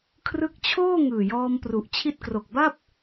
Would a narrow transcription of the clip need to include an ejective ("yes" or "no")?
no